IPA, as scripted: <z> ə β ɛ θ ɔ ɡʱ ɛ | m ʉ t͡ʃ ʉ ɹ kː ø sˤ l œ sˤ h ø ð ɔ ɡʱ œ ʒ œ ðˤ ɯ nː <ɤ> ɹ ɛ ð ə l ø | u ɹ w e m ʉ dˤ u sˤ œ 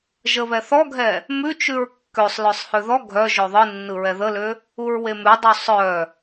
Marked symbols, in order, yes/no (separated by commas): no, no